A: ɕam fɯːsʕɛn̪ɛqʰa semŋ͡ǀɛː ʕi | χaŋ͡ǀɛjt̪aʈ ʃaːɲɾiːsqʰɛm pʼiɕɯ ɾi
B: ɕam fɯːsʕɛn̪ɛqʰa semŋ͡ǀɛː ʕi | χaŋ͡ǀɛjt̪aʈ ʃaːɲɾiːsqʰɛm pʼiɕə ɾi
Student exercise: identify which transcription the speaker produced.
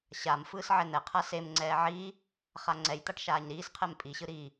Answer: A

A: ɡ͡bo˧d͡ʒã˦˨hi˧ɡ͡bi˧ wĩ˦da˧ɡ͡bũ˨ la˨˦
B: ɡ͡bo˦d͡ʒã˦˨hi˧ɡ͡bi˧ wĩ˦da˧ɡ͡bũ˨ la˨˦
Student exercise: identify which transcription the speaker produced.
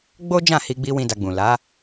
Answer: B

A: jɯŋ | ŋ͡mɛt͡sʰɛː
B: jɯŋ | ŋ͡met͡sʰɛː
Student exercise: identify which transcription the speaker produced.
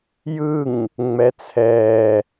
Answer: A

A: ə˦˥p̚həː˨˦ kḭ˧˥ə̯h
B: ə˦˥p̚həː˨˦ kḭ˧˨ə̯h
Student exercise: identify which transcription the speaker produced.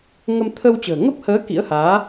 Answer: A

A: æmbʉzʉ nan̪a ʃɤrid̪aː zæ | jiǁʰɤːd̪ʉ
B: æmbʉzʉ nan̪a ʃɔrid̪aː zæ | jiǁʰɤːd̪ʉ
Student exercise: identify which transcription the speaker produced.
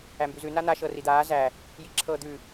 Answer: A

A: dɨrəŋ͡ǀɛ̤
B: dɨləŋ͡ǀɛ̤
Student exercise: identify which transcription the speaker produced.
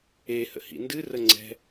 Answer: A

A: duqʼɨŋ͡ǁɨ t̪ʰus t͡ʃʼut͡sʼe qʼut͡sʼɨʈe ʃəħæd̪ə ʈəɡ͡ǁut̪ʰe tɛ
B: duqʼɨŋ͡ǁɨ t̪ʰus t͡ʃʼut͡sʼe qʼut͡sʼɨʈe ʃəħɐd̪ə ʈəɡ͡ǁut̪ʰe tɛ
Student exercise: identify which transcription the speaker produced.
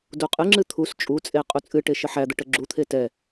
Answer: A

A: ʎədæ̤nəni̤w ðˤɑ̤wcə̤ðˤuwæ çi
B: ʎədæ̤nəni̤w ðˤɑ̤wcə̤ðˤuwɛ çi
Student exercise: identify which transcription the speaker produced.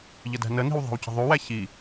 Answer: A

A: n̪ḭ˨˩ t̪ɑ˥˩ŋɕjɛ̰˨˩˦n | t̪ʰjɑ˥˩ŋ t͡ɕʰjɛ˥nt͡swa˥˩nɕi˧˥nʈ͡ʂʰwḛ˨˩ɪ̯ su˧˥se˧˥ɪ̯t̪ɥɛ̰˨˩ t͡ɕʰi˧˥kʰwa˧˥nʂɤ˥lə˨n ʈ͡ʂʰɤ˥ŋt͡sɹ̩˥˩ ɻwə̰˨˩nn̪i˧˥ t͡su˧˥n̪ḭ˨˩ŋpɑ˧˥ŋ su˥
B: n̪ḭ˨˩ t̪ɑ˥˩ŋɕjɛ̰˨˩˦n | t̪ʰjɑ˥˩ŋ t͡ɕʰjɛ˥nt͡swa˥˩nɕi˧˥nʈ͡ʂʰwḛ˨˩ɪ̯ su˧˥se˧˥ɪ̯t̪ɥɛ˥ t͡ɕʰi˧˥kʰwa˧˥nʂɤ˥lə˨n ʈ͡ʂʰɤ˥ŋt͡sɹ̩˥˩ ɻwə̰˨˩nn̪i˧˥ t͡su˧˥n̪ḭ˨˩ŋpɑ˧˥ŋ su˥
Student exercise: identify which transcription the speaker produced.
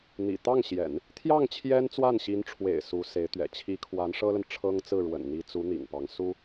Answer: A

